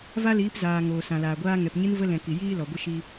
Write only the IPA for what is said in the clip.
v a˦ l iː˨˦ p z aː˨ ŋ oː˨ s ã˨ l aː˨ ɡʷ aː˦ ŋ ɛ˨ p ɲ ɨ˦ n v ə˧ l ɛ̃˨ k i˨ j iː˦ l ɔ˨ ɡʷ ə˦ ʃ i˦

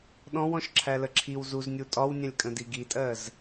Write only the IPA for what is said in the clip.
ɗ ɔ̃ w ɔ̃ ʃ ǁʰ æ l ə ǁʰ i w z u z nʲ u tʼ ɒ w nʲ ɛ̃ lʲ kʼ ə̃ d i ɡ i tʼ ɜ z

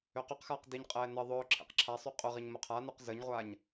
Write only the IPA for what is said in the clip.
ø q y q x aː q d i ɲ qʼ ɛː n ə ðˤ ʊː ǁʰ ḛ q ǁʰ a sˤ y qʼ ʊ ʁ i ɲ m ʊ qʰ a n ø q z ə ɲ ʁʷ aː ɲ

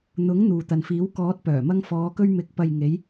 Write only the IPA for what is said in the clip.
n̪ ʊ˨˥ ŋ n̪ uː˨ t̪ ɐ˨ n f iː˨˥ w k ɔː˨˥ t̚ p œː˨˩ m ɐ˧ ŋ f ɔː˨˧ k ɵ˧ ɥ m ɪ˨˥ k̚ p ɐ˨ j ŋ e˨˧ j

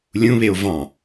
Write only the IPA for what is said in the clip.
lʲ ũ β e o̯ v ɑ̃

